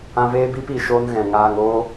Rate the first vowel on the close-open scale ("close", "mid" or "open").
open